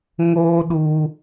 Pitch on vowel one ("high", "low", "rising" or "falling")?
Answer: high